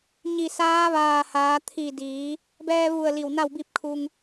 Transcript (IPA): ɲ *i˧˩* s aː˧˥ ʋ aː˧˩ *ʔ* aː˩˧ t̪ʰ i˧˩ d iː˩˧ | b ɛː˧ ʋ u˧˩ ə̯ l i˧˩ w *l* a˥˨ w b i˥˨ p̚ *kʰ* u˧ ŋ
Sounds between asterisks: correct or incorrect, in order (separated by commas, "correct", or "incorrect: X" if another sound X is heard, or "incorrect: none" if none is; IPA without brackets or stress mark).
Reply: correct, incorrect: h, incorrect: n, correct